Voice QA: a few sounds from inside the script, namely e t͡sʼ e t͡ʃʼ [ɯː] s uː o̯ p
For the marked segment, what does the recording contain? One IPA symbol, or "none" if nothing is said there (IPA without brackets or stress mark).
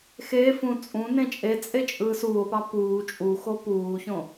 ɯː